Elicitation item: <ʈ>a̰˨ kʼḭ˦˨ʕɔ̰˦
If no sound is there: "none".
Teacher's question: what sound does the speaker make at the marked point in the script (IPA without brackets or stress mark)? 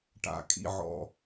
ʈ